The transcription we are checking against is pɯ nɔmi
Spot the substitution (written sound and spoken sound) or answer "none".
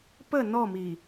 ɯ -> ə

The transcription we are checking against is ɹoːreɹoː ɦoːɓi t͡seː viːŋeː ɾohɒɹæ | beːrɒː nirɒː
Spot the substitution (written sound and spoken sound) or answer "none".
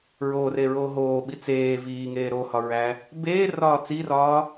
n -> t͡s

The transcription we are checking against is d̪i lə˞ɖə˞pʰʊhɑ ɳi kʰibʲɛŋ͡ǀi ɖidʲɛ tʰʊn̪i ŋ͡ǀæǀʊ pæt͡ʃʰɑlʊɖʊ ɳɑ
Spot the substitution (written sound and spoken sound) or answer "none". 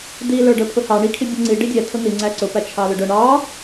none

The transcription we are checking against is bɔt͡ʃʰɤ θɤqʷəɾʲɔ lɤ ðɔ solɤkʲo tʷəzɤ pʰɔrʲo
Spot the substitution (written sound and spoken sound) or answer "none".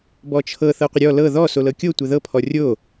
z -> ð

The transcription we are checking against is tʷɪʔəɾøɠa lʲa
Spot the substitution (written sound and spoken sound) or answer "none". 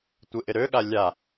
ə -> ɪ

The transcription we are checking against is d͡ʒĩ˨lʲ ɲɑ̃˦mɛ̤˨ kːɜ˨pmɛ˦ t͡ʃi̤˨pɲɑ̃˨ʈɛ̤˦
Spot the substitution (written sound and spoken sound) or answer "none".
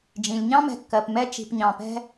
ʈ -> p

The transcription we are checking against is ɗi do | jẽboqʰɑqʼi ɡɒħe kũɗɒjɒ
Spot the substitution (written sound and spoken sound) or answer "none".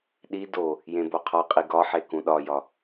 ɑ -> ɒ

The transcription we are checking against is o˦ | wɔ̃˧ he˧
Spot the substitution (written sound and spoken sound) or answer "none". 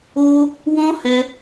e˧ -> ɛ˧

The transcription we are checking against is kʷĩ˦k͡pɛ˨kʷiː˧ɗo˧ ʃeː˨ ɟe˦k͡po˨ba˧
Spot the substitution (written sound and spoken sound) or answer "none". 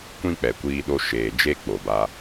ɟ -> d͡ʒ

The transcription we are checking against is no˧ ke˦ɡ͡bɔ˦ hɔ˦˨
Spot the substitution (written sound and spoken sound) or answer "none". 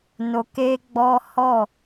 none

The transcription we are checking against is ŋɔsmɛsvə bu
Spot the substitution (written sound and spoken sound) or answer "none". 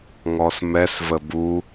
none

